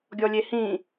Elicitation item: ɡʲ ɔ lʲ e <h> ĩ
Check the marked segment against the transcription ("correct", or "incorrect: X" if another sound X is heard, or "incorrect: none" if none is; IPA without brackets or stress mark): correct